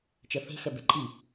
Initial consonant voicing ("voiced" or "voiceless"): voiceless